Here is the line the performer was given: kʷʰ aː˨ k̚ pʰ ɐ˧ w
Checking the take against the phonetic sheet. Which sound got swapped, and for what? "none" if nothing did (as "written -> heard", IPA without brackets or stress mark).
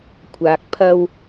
none